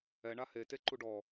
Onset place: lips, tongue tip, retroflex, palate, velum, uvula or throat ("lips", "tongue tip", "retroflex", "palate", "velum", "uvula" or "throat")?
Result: retroflex